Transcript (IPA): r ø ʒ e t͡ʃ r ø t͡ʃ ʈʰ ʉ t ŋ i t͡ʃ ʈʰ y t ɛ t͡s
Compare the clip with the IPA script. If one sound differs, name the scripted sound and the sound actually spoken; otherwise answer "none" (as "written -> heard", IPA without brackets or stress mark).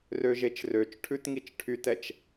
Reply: t͡s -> t͡ʃ